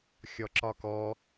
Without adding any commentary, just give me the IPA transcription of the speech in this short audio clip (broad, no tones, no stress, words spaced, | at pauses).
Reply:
xʲɔǁɒkɔ